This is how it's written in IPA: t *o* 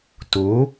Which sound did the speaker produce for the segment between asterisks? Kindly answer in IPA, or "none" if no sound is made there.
o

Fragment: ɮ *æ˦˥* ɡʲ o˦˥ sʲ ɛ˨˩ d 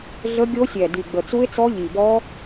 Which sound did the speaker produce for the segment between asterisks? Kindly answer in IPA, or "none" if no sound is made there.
ə˦˥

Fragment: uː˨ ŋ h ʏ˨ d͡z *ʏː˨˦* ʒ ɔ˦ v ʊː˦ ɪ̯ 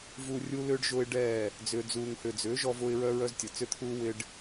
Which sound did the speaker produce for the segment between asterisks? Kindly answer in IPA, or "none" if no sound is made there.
ʏː˨˦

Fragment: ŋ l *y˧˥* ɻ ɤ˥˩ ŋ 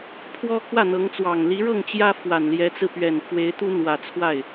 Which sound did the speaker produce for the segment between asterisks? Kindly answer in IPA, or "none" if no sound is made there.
i˧˥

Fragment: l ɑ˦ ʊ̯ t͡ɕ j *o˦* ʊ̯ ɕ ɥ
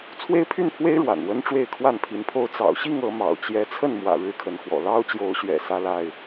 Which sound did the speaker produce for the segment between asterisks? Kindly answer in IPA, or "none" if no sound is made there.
o˨˦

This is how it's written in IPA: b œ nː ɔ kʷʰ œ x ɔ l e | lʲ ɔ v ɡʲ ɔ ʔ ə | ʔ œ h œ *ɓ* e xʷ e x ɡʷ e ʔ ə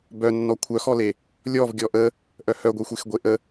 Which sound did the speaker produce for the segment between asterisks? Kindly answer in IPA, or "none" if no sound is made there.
ɡʷ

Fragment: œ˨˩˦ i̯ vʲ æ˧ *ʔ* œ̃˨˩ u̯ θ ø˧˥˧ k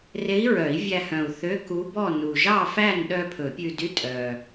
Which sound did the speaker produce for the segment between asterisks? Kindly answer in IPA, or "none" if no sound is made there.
h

